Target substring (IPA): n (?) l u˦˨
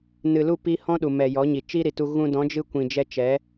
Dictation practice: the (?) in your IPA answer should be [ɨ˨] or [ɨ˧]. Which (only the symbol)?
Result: ɨ˨